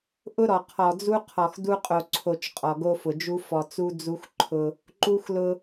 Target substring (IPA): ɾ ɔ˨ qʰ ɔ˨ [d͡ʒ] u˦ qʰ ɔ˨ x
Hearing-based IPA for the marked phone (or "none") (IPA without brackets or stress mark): d͡z